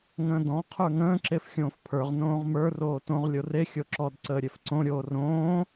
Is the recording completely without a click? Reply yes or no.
no